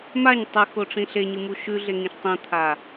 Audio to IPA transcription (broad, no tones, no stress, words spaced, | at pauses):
maɲ tˤɨxoʈ͡ʂĩ ɬeɲɨmu ʃʉɮeŋĩʃ tˤĩt̪ʰa